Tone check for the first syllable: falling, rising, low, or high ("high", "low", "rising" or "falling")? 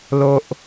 low